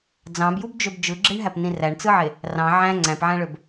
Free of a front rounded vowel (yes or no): no